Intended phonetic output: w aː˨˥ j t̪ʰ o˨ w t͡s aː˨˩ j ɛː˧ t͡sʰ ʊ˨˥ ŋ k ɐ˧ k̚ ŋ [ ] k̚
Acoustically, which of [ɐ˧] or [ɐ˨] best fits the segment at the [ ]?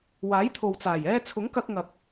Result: ɐ˨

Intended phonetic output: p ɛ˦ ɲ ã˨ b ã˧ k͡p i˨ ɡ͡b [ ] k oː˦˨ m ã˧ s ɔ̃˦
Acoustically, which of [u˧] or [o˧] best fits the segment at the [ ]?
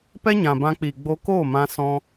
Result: o˧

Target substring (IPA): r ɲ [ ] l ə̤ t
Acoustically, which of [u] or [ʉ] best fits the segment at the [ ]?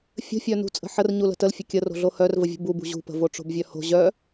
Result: u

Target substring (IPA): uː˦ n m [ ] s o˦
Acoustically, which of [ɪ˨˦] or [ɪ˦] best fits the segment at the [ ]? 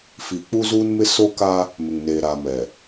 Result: ɪ˦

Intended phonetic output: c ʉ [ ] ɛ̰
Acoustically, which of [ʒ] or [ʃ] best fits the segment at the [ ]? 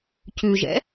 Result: ʒ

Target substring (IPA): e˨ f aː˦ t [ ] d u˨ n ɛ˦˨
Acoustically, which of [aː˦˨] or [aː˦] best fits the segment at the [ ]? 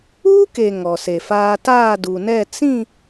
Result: aː˦˨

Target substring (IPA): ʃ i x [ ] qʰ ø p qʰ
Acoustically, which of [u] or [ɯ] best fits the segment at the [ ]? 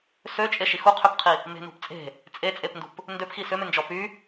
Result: u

